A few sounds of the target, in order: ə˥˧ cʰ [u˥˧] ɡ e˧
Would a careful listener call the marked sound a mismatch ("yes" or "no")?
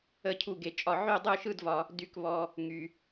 no